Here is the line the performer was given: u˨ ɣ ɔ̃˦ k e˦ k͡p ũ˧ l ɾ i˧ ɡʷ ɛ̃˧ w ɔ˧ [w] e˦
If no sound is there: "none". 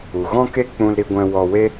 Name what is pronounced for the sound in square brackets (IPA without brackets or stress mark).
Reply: w